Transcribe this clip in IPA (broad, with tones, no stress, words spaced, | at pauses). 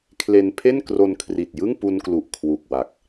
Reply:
kʰle˧npʰe˥˩nkro˧n kʰri˨˩t̚jɯ˥˩ŋpu˧nklu˨˩ʔ kʰwu˨˩k̚wa˨˩k̚